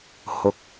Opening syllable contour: low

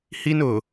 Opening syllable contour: high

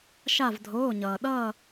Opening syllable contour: falling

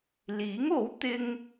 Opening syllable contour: rising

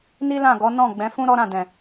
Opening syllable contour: high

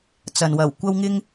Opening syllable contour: low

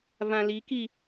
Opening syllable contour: low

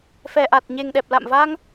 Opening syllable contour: low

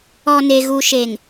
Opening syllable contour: low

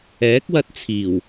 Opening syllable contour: rising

